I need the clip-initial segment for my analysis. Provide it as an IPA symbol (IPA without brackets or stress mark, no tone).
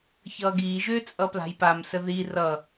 ç